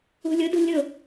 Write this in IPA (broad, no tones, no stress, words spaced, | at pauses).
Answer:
ṳlʲʊdṳ lʲʊ